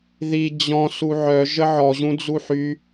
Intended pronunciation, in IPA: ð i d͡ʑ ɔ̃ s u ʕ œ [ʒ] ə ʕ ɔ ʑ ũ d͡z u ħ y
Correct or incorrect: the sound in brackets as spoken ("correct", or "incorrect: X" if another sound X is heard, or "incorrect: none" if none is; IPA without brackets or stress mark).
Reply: correct